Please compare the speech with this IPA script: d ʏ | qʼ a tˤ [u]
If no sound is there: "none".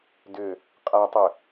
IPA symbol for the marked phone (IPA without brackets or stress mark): ʏ